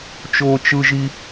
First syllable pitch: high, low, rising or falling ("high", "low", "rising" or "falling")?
high